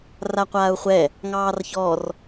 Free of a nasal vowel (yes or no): yes